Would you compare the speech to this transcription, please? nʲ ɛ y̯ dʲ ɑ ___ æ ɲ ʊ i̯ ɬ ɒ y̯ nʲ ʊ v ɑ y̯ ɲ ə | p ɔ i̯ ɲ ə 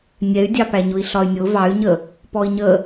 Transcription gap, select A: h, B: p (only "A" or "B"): B